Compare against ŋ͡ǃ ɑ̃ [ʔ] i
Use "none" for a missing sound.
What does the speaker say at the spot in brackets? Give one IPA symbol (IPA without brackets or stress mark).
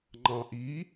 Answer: ʔ